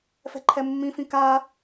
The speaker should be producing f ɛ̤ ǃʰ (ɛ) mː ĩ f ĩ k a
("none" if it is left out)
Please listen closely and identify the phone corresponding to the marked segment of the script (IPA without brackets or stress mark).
ɛ